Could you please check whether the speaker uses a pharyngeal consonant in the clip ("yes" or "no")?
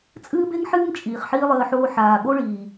yes